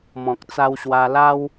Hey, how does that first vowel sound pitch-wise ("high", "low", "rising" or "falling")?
low